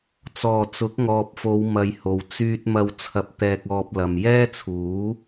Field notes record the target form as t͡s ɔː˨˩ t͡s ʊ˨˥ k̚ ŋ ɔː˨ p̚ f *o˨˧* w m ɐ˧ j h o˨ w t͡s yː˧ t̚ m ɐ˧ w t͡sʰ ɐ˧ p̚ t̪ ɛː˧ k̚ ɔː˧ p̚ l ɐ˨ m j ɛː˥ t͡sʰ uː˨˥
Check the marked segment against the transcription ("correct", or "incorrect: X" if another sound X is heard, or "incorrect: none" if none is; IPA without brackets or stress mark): correct